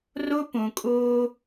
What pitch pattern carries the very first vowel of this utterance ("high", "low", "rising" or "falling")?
high